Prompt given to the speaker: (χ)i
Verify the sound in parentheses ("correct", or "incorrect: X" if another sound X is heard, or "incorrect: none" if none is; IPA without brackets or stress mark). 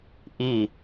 incorrect: ʔ